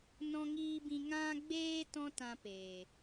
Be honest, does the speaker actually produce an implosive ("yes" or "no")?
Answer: no